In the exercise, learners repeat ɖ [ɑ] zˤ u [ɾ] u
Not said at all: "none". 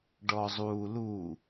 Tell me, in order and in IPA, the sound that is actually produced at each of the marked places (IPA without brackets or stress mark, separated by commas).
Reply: ɔ, l